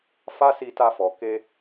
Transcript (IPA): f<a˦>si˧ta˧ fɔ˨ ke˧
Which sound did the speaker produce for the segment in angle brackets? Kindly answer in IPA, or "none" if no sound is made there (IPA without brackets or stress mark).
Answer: a˦